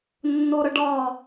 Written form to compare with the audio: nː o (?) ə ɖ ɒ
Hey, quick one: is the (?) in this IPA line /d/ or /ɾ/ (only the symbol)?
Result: ɾ